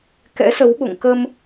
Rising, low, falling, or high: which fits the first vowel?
rising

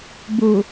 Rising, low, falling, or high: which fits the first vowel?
low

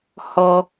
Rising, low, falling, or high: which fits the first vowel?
low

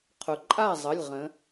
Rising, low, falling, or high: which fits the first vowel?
low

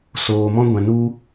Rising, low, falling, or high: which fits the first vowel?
low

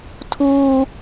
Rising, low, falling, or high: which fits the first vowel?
high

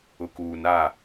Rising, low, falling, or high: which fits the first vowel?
low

